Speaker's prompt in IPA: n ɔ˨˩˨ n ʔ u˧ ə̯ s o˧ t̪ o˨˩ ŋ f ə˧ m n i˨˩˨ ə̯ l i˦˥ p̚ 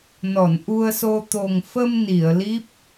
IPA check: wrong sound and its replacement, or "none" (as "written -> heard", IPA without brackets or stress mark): none